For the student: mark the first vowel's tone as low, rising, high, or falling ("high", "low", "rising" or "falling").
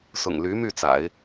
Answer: low